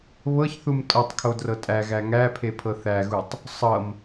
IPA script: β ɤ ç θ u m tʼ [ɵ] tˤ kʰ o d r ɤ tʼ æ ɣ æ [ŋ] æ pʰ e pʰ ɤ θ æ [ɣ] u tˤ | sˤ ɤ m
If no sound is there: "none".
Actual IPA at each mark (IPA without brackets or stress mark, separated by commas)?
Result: ɤ, ŋ, ɣ